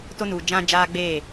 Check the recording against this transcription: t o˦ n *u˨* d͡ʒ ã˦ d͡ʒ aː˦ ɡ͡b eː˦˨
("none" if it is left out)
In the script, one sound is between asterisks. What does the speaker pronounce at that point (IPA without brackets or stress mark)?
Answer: u˨